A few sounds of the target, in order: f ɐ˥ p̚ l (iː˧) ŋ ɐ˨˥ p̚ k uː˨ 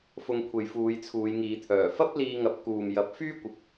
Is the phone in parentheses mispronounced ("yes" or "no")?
no